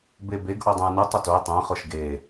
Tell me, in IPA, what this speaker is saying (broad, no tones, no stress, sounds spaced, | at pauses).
b e b e ɡ ʔ o dˤ ẽ j n u tˤ ʊ t o j tˤ ẽ χ ʊ ʃ ɡ e